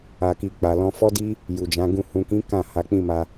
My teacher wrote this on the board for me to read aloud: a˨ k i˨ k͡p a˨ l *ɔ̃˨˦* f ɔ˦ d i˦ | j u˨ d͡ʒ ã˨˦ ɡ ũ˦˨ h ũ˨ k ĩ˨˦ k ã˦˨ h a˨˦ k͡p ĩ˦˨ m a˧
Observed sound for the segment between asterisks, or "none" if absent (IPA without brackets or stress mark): ɔ̃˧